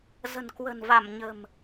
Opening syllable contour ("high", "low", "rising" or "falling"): low